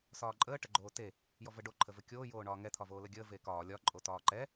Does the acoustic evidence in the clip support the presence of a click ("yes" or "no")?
yes